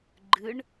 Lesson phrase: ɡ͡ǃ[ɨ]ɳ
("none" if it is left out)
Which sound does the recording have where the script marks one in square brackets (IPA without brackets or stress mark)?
ɨ